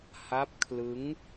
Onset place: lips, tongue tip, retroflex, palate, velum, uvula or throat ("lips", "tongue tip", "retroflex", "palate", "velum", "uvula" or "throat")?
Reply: throat